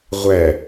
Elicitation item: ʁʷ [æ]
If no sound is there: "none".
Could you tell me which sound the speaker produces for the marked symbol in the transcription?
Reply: æ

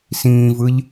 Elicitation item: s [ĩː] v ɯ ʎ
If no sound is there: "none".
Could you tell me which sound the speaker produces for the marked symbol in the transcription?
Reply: ĩː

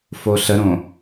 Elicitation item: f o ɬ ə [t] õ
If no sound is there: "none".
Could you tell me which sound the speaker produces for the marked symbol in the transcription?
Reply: ɾ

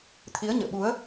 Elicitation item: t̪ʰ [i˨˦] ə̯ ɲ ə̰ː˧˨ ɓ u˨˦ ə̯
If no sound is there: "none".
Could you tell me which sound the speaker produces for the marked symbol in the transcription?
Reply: i˨˦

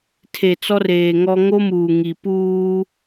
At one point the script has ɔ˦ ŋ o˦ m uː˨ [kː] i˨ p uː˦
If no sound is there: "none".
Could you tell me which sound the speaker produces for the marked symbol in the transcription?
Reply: ŋ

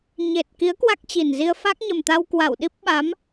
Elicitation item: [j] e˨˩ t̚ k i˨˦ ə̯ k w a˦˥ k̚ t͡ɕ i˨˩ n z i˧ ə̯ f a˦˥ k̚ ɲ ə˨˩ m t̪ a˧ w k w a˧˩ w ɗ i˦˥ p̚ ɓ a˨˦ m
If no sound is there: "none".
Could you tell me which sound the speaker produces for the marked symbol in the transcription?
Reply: ɲ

